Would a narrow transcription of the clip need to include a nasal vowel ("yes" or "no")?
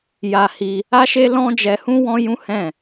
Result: yes